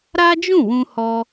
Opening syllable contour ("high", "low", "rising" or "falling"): high